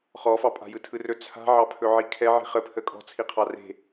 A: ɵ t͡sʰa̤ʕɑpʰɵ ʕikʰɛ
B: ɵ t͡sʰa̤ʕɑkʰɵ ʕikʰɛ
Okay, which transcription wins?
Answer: A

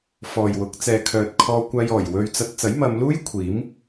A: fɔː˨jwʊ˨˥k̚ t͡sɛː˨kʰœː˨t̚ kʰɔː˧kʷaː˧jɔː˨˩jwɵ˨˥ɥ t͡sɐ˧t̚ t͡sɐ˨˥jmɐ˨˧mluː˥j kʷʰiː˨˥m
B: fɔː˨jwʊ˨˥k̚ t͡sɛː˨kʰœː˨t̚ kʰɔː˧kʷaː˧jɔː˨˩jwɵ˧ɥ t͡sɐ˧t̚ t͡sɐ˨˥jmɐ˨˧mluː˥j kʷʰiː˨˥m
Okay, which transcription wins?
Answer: B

